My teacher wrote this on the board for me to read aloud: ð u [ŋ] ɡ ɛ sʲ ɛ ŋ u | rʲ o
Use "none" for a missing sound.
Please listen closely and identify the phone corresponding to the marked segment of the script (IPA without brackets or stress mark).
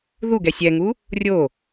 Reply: none